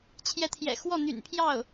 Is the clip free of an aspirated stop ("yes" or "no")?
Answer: no